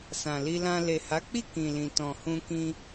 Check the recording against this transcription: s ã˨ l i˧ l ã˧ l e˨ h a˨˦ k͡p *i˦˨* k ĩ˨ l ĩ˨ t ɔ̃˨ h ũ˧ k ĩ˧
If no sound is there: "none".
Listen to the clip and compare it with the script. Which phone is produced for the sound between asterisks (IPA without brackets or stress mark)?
i˦˨